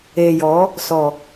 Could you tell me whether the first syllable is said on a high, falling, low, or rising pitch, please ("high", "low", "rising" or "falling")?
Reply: low